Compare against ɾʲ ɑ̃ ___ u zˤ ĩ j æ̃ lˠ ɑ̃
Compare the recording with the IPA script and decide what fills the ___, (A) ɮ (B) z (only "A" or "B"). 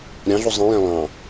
A